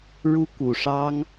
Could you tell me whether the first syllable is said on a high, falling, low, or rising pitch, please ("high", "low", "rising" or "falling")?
high